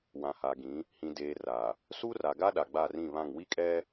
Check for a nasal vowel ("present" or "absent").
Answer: present